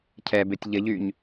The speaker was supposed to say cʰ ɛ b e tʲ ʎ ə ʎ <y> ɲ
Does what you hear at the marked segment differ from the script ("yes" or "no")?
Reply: no